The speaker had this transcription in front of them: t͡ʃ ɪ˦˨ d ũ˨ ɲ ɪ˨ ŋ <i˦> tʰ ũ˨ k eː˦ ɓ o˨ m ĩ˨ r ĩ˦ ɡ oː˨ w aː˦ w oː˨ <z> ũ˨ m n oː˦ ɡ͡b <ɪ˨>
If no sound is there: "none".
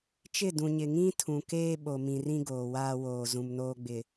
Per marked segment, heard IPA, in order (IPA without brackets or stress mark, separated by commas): ĩ˦, z, ɪ˨